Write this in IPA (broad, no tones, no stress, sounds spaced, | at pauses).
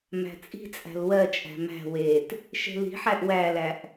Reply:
m æ̤ t͡sʼ i̤ t͡sʼ æ̤ l w ɜ t͡ʃʼ æ̤ m æ̤ w e t | ʃ e̤ l i̤ ħ æ ʔ w æ l æ ʔ